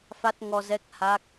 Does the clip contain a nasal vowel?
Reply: no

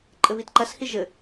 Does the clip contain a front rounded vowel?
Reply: no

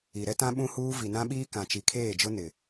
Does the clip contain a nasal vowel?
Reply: yes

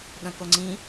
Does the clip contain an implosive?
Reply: yes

